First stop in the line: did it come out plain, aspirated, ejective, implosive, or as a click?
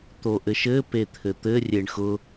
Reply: plain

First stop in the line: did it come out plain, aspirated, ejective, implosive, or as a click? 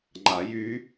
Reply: click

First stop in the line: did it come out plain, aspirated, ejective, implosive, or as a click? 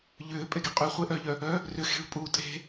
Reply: ejective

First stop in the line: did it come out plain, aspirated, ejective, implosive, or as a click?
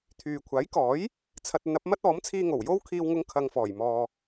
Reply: aspirated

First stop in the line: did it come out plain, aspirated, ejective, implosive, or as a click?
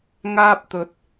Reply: plain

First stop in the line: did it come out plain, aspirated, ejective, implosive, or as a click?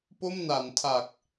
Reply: plain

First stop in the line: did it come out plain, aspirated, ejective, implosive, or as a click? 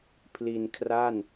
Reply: aspirated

